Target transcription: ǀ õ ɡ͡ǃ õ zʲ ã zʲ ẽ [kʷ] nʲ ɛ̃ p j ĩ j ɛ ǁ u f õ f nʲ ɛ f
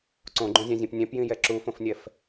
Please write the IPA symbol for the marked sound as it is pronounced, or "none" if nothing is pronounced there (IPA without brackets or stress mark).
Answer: p